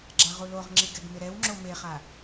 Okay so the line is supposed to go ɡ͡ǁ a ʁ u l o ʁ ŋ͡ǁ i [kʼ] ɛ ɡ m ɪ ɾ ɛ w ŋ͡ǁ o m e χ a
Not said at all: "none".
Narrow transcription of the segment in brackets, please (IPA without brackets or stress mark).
ɡ